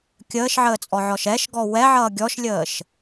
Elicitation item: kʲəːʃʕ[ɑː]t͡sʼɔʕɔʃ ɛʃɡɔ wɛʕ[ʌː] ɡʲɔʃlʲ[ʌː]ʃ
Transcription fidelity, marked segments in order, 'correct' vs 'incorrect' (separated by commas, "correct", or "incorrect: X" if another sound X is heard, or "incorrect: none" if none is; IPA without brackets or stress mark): incorrect: əː, correct, incorrect: əː